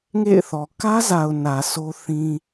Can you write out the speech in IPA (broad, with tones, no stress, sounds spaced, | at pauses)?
ŋ ḛ˦˨ ɪ̯ θ ɔ˨ k ä˦ z a˨ ʊ̯ n ä˨ s o˦ θ ĩ˦